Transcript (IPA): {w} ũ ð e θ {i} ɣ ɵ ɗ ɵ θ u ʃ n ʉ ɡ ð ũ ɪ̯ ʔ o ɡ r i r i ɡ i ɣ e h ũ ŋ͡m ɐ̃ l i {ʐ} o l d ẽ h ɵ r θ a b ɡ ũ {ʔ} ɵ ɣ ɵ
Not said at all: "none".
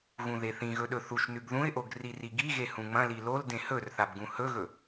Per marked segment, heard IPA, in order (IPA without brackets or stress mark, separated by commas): ɣ, ĩ, l, h